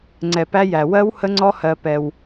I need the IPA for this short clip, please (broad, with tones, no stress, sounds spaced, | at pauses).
ŋ͡ǀ ɛ˨ p æ˦ j æ˨ w ɜ˦ w h ə˦ ŋ͡ǀ ɔ˦ h ɜ˦ p ɛ˦ w